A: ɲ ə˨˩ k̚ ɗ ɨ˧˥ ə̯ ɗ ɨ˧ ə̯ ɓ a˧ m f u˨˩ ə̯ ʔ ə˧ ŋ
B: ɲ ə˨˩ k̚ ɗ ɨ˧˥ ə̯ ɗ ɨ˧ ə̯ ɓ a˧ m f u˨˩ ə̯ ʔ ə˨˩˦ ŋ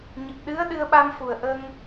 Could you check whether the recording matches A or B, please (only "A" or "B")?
A